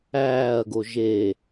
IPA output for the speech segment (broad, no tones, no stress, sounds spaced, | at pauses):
æː ɐ̯ ɡ o ʒ e